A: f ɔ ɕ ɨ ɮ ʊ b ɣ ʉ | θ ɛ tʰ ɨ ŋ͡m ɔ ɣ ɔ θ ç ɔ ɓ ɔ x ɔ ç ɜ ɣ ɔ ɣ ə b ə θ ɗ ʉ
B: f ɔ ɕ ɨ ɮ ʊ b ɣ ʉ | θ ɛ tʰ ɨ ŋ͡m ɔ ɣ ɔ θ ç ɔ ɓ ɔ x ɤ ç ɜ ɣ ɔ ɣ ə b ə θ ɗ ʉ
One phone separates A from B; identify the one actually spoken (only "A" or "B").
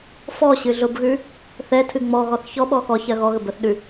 A